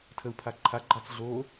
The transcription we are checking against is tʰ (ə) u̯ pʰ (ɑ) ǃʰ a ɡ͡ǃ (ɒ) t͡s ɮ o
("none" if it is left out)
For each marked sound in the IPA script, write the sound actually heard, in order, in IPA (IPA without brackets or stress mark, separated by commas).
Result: ə, a, ɑ